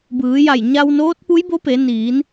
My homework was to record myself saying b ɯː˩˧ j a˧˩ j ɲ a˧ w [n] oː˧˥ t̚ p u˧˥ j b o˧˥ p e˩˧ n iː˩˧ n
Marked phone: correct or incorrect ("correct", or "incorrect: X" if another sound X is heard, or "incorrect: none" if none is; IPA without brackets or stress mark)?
correct